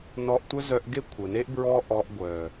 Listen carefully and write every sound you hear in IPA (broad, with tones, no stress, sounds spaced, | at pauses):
n ɔ˧ ʔ tʷ œ˦ z œ˧ ʔ ɡ e˦ kʷʰ ə˨ n e˦ ʔ b ɹ ɔ˦ ʔ ɔ˧ ʔ ɡʷ œ˨